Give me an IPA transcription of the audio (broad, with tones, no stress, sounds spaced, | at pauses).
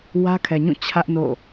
w ä˦ kʰ ɛ˨ ɲ ũ˦˨ t͡ɕʰ ä˦ ʔ n o̰˦˨